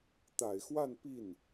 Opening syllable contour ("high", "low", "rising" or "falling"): low